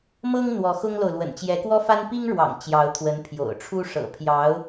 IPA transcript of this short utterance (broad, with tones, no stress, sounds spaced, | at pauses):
m ɤ˥ ŋ n̪ w ɔ˧˥ x ʊ˥ ŋ l o˨ ʊ̯ l w ə̰˨˩ n t͡ɕ j ɛ˧˥ k w ɔ˥ f a˥ n p i˥ ŋ ɻ w ɑ̰˨˩ ŋ t͡ɕ j ɑ˧˥ ʊ̯ t̪ʰ w ə˧˥ n pʰ j o̰˨˩ ʊ̯ ʈ͡ʂʰ u˥ ʂ ɤ̰˨˩ pʰ j ɑ˧˥ ʊ̯